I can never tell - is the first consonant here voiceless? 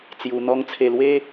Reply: yes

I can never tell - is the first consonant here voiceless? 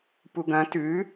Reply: yes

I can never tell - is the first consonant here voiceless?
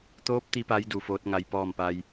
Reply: yes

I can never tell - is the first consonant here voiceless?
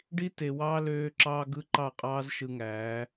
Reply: no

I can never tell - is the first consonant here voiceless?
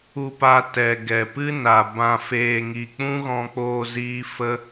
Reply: yes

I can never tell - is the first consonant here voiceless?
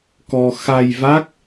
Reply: yes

